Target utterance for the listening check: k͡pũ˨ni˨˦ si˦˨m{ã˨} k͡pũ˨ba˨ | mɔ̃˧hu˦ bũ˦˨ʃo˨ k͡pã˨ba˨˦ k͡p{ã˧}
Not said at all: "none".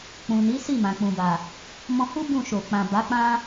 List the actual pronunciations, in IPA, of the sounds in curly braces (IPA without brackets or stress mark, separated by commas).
ã˨, ã˦